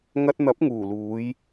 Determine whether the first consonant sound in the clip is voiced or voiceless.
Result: voiced